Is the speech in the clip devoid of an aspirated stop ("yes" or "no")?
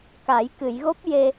yes